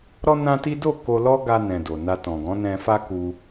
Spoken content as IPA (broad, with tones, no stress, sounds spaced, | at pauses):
ɾ ɔ˦ n ã˦ t i˦ d o˦˨ k o˧ l ɔ˦ ɡ a˧ n ɛ̃˨ d o˨ n a˧ t ɔ̃˨ ɡ ɔ̃˨˦ n ɛ̃˧ f a˦ k u˧